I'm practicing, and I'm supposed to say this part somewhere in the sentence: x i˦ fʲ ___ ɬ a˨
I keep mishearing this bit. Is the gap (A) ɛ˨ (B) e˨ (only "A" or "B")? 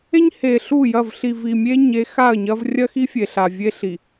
B